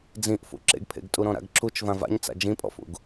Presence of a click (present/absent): present